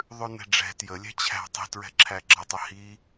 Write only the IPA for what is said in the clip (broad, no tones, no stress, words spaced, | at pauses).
ðˤʉnɛ̤ɖ͡ʐɛ̤ tjəlʲɛ̤ t͡ɕʰæ̤tˤi̤ tɹɛ̤ǁʰæɡ͡ǁɐtˤə hi